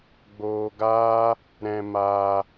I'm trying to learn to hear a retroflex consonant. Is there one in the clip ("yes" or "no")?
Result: no